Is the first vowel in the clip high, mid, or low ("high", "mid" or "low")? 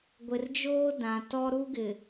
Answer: high